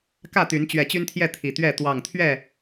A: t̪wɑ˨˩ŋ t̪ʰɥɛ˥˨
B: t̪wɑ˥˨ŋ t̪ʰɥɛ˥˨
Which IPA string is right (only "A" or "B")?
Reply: A